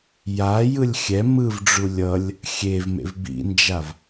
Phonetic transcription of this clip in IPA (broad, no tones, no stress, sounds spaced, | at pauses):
j a j ɯ lʲ xʲ ɛ m ɯ v ɖ͡ʐ u lʲ ʌ lʲ | xʲ e v m ḛ v b ḭ n d͡ʒ a v